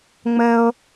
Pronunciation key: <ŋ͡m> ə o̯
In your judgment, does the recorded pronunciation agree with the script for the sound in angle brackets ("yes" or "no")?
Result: yes